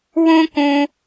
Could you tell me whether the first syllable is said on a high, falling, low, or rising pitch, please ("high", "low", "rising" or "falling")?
high